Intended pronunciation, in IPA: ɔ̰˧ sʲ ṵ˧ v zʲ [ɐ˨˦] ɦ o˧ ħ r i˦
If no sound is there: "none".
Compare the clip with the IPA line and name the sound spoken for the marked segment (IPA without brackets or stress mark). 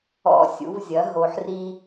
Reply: ɐ˨˦